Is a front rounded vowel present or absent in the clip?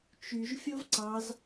present